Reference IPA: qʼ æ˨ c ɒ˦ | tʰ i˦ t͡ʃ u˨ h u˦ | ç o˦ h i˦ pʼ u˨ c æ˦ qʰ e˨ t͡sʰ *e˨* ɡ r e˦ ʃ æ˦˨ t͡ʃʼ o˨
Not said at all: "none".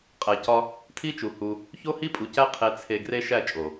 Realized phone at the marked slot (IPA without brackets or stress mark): e˨